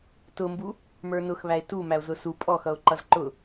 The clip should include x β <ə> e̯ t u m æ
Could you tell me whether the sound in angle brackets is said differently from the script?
yes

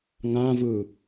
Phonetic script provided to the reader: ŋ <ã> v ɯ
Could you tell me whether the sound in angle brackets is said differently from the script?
no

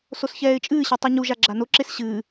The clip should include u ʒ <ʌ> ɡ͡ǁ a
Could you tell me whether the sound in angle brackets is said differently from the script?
yes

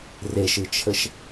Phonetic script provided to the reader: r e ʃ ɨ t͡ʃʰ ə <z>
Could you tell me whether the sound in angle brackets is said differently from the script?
yes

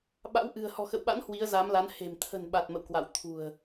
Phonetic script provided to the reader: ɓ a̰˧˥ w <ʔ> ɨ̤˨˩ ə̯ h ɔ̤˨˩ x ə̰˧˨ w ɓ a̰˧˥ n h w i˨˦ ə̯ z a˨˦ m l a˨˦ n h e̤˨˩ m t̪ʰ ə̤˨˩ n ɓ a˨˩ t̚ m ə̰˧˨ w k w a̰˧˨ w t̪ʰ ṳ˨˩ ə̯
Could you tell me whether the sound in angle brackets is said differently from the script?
no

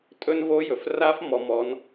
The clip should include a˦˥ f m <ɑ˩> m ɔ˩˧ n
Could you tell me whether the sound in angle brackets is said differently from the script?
yes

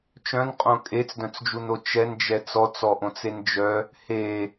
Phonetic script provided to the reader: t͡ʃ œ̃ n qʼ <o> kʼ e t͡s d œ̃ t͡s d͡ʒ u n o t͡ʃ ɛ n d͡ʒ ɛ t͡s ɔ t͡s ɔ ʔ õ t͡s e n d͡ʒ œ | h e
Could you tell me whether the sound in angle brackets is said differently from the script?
yes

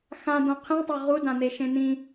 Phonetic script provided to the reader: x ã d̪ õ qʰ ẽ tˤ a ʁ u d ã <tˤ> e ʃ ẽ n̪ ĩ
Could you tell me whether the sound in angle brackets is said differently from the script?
yes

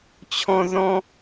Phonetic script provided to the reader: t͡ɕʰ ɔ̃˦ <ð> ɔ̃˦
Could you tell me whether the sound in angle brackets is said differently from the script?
no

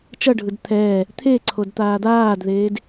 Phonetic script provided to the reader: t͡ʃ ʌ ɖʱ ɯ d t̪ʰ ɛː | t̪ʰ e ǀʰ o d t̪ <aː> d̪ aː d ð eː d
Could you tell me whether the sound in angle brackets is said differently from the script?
no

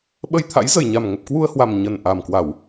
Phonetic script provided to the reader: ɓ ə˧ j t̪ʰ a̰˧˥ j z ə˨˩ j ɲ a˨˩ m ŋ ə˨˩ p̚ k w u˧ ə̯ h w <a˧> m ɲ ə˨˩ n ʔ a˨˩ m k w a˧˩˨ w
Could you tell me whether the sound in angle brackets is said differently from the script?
yes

